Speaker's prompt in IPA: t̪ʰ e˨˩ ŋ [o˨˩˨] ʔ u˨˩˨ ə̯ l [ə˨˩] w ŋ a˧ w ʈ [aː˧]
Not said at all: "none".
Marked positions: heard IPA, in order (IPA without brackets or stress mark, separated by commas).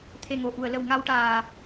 o˨˩˨, ə˨˩˨, aː˨˩